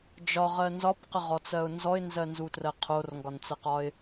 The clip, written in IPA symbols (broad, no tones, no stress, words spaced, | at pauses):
d͡ʒɒʁɜ nzɒpqəʁɔt͡sɜʊ̯ nzɔɪ̯nzɜnzutrɜ qʰorŋɡɒnt͡sɜqɒɪ̯